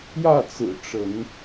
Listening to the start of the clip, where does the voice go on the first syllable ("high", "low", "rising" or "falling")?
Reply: falling